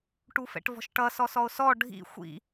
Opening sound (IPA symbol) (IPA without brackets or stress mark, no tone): ʈ